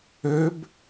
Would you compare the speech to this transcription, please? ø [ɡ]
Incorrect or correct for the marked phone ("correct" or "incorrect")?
incorrect